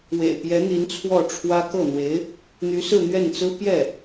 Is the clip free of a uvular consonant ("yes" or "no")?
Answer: yes